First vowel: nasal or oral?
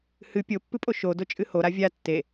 oral